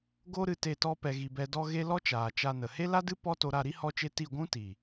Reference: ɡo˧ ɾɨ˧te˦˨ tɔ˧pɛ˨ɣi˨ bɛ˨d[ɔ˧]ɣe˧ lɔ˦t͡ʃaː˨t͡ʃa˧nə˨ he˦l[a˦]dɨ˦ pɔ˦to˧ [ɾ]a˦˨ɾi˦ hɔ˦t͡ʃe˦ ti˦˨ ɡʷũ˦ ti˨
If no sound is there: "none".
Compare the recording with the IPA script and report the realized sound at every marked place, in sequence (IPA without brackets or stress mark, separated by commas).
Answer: ɔ˧, a˦, ɾ